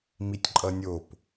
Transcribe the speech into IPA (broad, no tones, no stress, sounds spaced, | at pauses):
m i tʲ ǃʼ ʌ nʲ o p